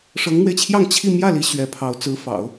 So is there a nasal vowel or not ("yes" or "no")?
no